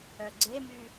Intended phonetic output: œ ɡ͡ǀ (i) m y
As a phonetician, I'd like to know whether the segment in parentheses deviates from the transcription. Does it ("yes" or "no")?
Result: yes